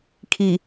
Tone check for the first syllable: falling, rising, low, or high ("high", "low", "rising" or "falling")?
low